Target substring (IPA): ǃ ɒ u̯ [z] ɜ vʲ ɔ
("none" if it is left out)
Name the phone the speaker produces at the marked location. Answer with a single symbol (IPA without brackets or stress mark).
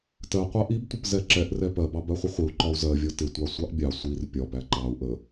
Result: z